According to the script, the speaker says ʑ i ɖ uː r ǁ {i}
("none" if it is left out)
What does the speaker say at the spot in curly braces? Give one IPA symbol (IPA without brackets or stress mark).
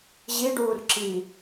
i